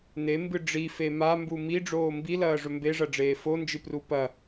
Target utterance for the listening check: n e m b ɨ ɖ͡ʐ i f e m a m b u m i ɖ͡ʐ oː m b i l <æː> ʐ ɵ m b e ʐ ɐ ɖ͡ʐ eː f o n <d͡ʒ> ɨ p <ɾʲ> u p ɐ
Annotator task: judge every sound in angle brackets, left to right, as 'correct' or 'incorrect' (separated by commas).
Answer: incorrect, correct, incorrect